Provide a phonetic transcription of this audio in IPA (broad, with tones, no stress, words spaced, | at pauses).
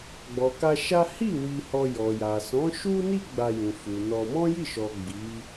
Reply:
ɡ͡bɔ˨ka˧ ʃa˦ hi˦˨ wi˧hɔ˧ jɔ˨ja˨ sɔ̃˨˦ʃu˦ni˦ ɡ͡ba˧jũ˨ fu˨nɔ˧ mɔ̃˦ji˦˨ʃɔ˨ ɡ͡bi˨˦